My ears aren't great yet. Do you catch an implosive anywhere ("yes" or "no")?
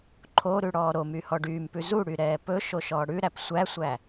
no